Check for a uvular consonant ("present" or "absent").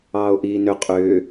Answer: present